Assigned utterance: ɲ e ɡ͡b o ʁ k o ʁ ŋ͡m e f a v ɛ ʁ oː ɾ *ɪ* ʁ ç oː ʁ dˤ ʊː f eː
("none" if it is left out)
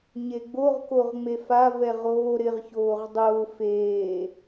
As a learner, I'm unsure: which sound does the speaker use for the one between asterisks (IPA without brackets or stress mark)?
ɪ